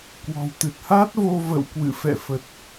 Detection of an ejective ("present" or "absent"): absent